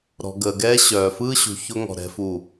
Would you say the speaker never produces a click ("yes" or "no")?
yes